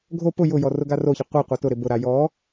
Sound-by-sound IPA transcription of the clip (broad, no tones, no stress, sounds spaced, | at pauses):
ɡʱ o p ʊ j ʊ j ɔ r ʊ ɡ a r o ç e qʷ ɛ qʷ a t ʊ ɾ ɪ b ʊ ɾ a j ɔ